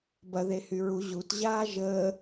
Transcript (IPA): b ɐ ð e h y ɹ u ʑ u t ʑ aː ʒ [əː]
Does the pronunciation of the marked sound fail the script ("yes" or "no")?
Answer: no